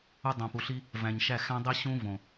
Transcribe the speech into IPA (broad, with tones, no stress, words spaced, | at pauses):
u˧dˤõ˨pu˨ɬi˦ | væ̃˨ɲʃæ˦˨ xæ̃˦dˤi˦ ɕũ˦võ˨